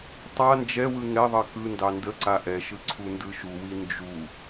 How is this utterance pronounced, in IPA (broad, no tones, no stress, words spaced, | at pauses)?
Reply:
tˤa nd͡ʒɛwɯ ŋɛðˤɜ kɯndɑ ndəǀa ʔɛʃɯ ǀʰundɯʃuwi nd͡ʒu